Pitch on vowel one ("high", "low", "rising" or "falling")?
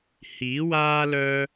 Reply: rising